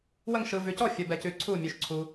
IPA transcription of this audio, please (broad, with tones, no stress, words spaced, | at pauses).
wə˥˧ŋʃɯ˧ vʉ˧cɔ˥˧ fʲə˧bɛ˧cʉ˧ ǀʰu˥˧mʲʉ˧ʃǀʰu˧